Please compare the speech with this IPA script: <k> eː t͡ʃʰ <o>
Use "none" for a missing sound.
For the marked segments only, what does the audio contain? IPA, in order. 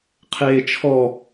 qʰ, ɔ

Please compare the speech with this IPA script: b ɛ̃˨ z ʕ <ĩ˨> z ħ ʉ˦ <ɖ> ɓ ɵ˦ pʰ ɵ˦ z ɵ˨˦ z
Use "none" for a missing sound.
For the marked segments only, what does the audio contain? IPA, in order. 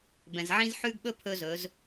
ĩ˦, ɡ

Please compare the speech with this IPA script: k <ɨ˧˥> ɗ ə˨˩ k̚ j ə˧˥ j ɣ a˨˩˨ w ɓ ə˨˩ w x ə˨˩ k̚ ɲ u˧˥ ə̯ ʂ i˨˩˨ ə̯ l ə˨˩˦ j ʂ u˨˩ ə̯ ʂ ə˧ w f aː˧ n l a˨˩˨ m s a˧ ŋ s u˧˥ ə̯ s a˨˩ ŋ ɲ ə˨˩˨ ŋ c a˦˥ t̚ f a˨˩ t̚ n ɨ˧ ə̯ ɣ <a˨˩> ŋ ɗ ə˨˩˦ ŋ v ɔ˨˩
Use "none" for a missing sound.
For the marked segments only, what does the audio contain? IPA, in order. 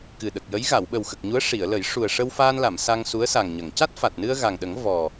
ɨ˨˩, a˨˩

